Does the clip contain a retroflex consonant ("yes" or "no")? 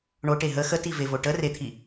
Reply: yes